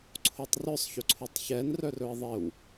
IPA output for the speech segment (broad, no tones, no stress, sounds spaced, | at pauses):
ǀʰ o tˤ r œ sˤ ç ɵ ǀʰ o tˤ ç ɛ n r œ r ɵ ɪ̯ ðˤ ɪ w